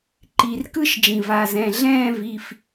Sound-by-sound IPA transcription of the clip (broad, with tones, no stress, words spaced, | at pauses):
ǃi˩rkɯ˥˧ʃ d͡ʒĩ˩va˩˧˩zɛ̃˩˧˩ ɮɛ̃ː˥˧ vi˩˧˩f